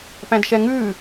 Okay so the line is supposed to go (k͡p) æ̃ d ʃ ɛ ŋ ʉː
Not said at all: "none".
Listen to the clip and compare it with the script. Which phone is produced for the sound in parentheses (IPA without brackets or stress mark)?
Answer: p